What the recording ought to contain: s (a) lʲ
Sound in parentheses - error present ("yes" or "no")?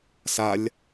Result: no